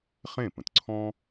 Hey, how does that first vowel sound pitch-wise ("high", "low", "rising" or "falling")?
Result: falling